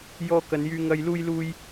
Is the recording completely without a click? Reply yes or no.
yes